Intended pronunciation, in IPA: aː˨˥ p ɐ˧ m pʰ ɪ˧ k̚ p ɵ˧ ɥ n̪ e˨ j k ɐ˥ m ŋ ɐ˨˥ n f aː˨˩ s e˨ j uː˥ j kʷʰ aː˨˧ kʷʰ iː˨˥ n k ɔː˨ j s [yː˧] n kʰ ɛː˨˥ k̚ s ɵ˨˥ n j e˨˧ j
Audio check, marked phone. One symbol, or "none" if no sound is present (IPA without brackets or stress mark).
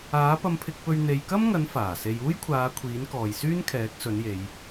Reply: yː˥